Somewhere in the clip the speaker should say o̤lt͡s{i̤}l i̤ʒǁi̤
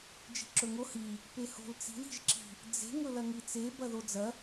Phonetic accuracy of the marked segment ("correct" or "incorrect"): correct